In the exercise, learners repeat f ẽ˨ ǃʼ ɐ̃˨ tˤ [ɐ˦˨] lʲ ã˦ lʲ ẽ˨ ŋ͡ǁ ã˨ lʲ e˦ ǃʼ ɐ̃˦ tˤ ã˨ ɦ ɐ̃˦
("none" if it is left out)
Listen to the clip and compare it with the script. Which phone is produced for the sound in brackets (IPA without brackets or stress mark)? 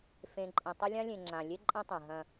ɐ˦